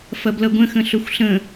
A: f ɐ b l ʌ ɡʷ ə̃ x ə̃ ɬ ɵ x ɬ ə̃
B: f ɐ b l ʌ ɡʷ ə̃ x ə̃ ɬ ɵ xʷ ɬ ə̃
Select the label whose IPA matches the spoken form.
B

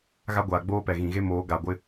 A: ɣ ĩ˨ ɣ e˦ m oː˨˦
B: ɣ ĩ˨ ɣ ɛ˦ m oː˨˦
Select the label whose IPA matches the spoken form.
A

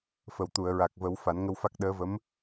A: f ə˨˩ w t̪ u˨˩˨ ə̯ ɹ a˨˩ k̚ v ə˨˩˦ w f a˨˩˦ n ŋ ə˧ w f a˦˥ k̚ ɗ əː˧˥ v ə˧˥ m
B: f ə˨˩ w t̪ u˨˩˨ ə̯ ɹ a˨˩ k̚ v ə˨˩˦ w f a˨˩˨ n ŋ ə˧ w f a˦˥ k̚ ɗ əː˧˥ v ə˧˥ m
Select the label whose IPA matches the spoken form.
A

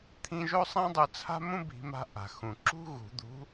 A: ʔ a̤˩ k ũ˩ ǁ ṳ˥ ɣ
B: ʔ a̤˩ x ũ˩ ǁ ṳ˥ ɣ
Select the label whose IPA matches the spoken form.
B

